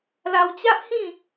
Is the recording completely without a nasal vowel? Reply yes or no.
no